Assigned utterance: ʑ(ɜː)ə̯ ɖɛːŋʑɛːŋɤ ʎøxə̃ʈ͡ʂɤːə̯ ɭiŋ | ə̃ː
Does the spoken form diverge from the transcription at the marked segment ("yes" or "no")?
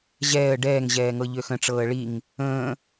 yes